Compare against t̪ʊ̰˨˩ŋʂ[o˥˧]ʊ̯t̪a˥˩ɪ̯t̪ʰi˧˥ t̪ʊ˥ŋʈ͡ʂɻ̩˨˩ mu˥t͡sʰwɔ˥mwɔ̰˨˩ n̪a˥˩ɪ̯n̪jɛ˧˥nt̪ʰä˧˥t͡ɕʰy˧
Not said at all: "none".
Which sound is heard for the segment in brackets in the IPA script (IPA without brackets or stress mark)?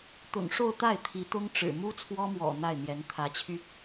o˥˧